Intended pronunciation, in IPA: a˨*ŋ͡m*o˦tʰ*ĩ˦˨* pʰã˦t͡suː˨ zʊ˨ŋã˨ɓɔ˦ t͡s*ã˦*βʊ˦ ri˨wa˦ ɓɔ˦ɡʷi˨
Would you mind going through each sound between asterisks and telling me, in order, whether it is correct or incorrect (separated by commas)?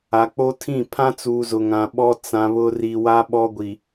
incorrect, correct, incorrect